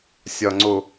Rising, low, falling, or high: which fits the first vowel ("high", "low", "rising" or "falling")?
low